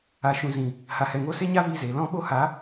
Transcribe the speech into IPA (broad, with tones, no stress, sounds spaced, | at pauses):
a˨ ʃ ũ˨ z ĩ˨ | h a˨ h ɛ˨ ŋ o˧ s e˦ ɲ a˦ v iː˧ z eː˨ l ɔ̃˧ ɓ o˧ h a˨˦